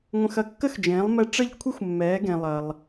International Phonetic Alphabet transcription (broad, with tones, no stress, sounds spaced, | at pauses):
ŋʷ ə̃˧ x ɐ˧ kː ə˥ x d͡ʒ ẽː˩˥ lˠ m ɛ˧ ʈ͡ʂ ə˥˩ ʎ kʷʰ e˥ xʷ mː ɛː˩˥ ɡ ẽ˩ lˠ ɐ˩ lˠ